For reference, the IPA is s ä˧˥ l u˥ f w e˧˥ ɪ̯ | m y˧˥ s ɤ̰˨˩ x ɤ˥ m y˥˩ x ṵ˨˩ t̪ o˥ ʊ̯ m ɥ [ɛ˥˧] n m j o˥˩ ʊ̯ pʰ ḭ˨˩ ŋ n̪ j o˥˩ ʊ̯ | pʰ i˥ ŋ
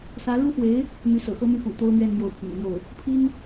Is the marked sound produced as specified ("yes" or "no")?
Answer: yes